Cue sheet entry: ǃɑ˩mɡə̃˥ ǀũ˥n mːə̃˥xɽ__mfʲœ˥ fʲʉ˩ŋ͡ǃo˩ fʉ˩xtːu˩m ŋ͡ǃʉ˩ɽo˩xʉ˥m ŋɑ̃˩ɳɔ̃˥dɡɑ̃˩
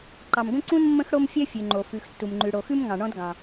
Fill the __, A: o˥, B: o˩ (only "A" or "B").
A